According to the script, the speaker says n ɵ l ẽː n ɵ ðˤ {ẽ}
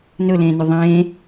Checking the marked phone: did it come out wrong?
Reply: yes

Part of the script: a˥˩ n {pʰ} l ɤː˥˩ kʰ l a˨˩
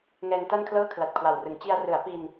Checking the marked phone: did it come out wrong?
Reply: yes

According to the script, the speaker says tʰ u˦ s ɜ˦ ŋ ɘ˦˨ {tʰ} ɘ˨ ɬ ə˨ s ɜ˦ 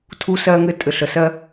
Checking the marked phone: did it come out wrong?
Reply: yes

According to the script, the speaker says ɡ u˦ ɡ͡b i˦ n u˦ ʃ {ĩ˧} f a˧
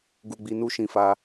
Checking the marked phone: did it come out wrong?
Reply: no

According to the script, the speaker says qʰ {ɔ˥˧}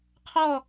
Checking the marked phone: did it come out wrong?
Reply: no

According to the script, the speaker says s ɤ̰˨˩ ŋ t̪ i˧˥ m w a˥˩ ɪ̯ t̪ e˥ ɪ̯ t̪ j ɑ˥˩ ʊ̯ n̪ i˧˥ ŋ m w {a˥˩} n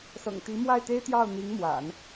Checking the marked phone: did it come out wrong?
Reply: yes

